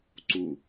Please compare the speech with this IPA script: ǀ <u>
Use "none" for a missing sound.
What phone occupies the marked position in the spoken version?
u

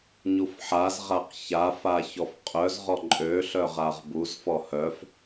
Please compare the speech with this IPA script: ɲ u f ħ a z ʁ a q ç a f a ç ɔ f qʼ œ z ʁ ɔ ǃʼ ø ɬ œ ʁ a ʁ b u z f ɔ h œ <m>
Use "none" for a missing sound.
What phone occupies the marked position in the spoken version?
f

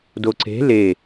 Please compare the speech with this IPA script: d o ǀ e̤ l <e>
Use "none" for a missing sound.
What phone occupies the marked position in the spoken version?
e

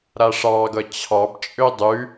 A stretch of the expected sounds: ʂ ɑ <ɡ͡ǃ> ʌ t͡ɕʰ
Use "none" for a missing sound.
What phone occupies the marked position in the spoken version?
ɡ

